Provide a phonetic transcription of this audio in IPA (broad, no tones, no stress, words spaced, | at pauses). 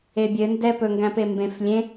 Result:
ebʲɘndɛ pɵŋɡæ̃pe mbẽf lʲẽ